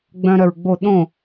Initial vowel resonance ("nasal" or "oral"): nasal